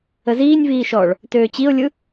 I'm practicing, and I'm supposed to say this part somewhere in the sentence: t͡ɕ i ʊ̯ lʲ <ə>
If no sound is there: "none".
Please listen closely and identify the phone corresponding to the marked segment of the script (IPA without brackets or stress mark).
ɯ